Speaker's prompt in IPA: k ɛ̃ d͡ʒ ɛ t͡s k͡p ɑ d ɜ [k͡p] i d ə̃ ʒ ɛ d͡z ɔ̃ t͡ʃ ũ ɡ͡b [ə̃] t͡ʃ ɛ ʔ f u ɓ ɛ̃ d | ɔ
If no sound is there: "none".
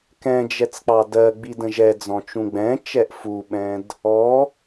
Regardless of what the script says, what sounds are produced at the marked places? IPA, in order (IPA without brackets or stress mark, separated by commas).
ɡ͡b, ɛ̃